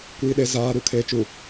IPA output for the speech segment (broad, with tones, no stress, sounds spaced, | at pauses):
kʷ iː˨ ɗ e˨ z aː˨ ɾ u˨ kʰ eː˨ t͡ʃ u˨